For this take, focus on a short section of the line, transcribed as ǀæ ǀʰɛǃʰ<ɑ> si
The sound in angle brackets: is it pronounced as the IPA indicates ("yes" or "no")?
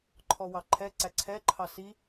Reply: yes